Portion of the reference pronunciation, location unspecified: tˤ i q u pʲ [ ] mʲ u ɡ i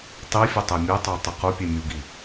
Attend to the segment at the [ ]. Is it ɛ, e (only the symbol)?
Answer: e